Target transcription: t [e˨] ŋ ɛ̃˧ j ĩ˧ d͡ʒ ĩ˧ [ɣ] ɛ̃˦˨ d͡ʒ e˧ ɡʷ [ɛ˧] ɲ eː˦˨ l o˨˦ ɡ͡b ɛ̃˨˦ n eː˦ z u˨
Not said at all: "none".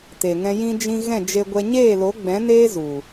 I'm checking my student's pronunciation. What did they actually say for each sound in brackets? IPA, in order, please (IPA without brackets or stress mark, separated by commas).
e˨, ɣ, ɛ˧